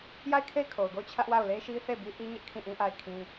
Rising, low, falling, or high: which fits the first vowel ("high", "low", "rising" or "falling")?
falling